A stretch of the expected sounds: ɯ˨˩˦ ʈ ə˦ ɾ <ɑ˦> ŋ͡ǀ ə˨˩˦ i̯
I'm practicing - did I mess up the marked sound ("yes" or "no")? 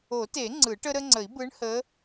yes